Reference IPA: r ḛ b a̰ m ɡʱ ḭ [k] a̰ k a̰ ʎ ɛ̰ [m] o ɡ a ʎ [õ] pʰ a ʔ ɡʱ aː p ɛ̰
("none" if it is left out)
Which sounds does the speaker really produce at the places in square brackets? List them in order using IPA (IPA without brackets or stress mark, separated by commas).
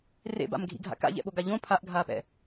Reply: ɡʱ, ɓ, õ